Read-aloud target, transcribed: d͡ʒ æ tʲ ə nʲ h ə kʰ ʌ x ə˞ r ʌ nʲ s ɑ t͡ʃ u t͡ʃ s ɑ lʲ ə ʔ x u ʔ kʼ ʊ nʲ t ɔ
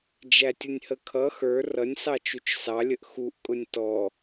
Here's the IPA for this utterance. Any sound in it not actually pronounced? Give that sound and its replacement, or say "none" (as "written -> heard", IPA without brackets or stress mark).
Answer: none